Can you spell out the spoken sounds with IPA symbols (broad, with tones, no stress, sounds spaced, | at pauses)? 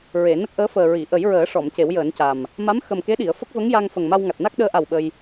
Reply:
ɹ e˨˩˨ n ə˦˥ k̚ ʔ əː˧˥ f əː˨˩ ɹ i˨˩˨ ʔ ə˨˩˦ j ɹ əː˨˩˦ ʂ ɔ˨˩˨ m c e˨˩˦ w j əː˨˩˦ n c a˨˩ m | m a˧˥ m x ə˨˩ m k e˧˥ ɗ i˨˩˨ ə̯ f ə˦˥ k̚ v ə˧˥ ŋ j a˧ ŋ f ə˨˩ ŋ m a˧ w ŋ a˨˩ t̚ n a˦˥ k̚ ɗ əː˧˥ ʔ a˨˩ w ɓ ə˧ j